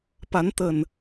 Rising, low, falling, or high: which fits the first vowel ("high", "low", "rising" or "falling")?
rising